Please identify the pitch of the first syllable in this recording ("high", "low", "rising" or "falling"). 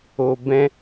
low